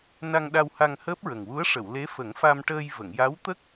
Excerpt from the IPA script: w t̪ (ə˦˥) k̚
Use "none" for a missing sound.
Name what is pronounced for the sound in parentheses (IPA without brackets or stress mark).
ə˦˥